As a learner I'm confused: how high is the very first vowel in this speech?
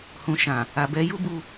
high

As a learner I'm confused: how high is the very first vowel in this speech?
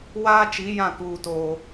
low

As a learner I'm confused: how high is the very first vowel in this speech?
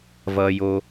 mid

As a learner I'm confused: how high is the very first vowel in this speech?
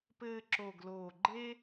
mid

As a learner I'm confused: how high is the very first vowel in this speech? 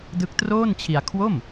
high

